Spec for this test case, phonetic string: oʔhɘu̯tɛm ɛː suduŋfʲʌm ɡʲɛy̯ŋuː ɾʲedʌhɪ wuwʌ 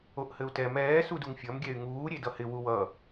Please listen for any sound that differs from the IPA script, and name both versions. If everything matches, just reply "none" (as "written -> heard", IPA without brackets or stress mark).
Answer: none